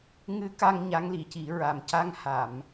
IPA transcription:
ŋ ɨ˧˥ k a˧ ŋ ɲ a˧˥ ŋ l i˨˩˨ c i˨˩˦ ɹ a˨˩ m c a˧ ŋ h a˨˩˨ m

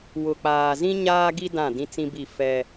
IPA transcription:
w ʊ˨ k͡p aː˨ z ĩ˦ ɲ aː˦ ɡ i˦ d ã˦˨ d ĩ˦ t͡s ĩ˦ b i˦˨ f ɛ˦

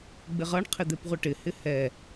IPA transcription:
ɡ͡b ɪ ʁ ʌ ɳ qʰ ɪ d̪ ɛ p ʁʷ ɪ ʈ ɪ h ɪ h ɛ

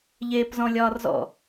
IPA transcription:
ʎ e p z ɔ̃ lʲ ɒ r z ɔ̰

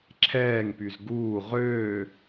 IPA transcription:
ǁʰ ɛː ŋ p y z ɡ uː ʁ øː

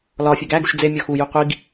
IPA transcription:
l ɒ fʲ æ ɡ æ ɡ u ʃ d͡z e mʲ ɒ x u j u qʷ i ɡ

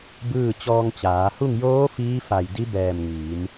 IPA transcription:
b ɯː˥˨ t͡ɕ ɔː˧ ŋ t͡ɕ aː˩˧ h u˥˨ ŋ j oː˧˥ f iː˧˥ f a˧˩ j d i˧˥ b ɛː˧˩ m ŋ iː˩˧ m

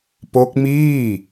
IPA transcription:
p o˦˥ k̚ m iː˥˩

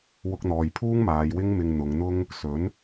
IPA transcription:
w ʊ˧ k̚ n̪ ɔː˨ j pʰ uː˥ ŋ m aː˨˧ j w ɪ˥ ŋ m ɪ˧ ŋ n̪ ʊ˨˧ ŋ n̪ ʊ˥ ŋ | s ɵ˨˥ n

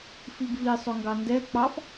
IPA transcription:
f i ɡ v i sˤ ɵ ŋ ɡ ɑ n d ɛ k͡p ɑ f

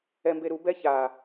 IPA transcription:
ɛ m b e ɾ u b ɛ ç a

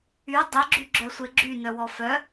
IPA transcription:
y dˤ ɪ ɡ͡ǁ y ɡ͡ǁ œ sʷ e ɡ͡ǁ y n œ w ɔ f œ

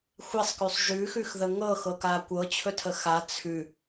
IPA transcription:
xʷ e sˤ k ʉ sˤ ʒ ʉ x ʉ x ð ə ŋ ɤ x ɤ k a kʷ ɤ t͡ɕʰ ɵ tʰ ə x a t͡sʰ ʉ

